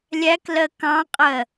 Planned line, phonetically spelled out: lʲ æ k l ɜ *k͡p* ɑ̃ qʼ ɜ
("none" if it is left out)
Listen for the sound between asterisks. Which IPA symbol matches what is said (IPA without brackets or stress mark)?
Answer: k